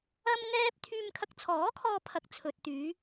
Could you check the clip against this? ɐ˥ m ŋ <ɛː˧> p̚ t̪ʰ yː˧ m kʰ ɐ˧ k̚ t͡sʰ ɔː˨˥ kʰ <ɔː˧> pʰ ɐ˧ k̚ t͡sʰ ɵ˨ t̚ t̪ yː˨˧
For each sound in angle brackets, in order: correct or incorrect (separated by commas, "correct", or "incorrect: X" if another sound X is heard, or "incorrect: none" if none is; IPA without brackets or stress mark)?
incorrect: ɛː˥, correct